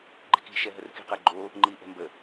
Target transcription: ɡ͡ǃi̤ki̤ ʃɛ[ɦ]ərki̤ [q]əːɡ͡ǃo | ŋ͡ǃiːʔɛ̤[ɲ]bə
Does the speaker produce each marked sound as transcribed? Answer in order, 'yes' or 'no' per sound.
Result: yes, yes, no

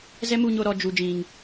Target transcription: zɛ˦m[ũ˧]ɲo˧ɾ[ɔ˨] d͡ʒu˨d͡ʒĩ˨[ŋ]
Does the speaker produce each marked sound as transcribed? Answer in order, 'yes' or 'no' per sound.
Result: no, yes, yes

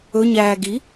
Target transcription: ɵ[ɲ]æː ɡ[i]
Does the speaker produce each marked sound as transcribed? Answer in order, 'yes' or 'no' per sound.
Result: yes, yes

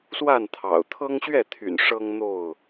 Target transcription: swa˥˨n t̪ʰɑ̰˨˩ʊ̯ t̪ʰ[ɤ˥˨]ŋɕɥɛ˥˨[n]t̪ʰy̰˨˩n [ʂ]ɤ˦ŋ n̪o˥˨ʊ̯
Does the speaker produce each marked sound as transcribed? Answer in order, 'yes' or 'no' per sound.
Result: no, no, yes

